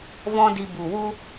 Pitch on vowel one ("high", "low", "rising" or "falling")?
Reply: high